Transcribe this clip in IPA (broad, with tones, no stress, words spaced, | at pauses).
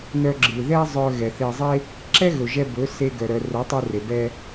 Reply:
nœ˧ɡ͡ǁɯ˨ðɛ˦ zˤœ˧ɣɛ˨θe˧zˤe˦ | ǁɛ˦ɣɵ˨ʒɛ˧bɵ˨˦ se˧ɡœ˨ ɾœ˨rœ˨˦tˤɵ˧re˨ bɛ˧